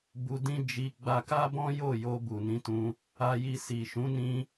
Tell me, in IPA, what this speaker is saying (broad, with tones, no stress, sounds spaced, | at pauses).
b u˧ d ĩ˦ d͡ʒ i˧ ɡ͡b a˧ k a˦ b ɔ̃˦ j o˦˨ j o˧ b u˨ n ĩ˧ t ũ˧ | a˧ j i˧ s i˨ ʃ ũ˨˦ n ĩ˧